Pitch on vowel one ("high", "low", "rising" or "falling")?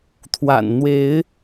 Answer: low